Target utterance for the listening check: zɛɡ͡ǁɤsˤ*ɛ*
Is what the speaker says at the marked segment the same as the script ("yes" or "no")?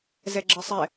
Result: yes